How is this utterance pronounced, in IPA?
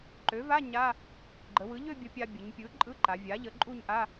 ǃ ø˩˥ v a˧˥˧ ɲ a˧˥˧ | ɡ͡ǃ ə˩˧ w ɯ˩˥ ʎ ø˥˧ bʲ ə˧ pʲ a˧ bʲ ə˩˧ ɲ pʲ ɯ˩˥ ǃʼ ɯ˧˥˧ ǃ a˩˧ vʲ a˩˥ ʎ ə˩˥ ǃʼ u˥˧ ɲ ʔ a˧˥˧

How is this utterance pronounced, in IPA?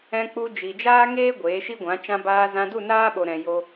ɛ̃˧ k͡p u˧ d͡ʒ i˨ d͡ʒ aː˦ ŋ eː˦ ɡʷ eː˨˦ ʃ i˦ ɡʷ ã˨˦ t͡ʃ ã˧ b aː˧ z ã˧ d u˦˨ n aː˦ ɓ o˨ ɾ ɛ̃˨ j o˧

